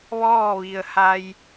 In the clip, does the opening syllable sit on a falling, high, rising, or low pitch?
falling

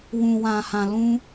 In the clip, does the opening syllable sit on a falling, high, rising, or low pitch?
low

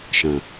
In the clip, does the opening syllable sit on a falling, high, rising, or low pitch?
low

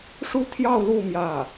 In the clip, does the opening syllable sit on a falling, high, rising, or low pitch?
high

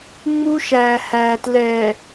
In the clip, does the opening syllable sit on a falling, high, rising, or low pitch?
high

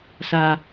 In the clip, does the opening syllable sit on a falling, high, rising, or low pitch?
high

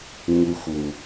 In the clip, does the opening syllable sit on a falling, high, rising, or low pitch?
high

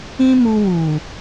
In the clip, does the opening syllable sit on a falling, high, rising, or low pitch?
high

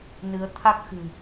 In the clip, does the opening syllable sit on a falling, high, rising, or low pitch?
rising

